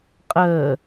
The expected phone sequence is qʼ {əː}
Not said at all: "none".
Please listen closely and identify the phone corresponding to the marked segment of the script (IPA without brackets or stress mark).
əː